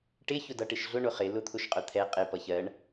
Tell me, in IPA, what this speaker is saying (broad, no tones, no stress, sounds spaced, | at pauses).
ʈ ɪ ç ʊ d ʌ ʈ ɪ ʃ ɮ ʊ ɳ ʊ χ ɪ l ʊ t̪ʰ ʊ ʃ qʼ ʊ t̪ʰ ɛ qʼ ɪ p ʌ ç ɜ ɳ